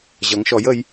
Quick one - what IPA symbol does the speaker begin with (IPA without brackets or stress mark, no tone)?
ʑ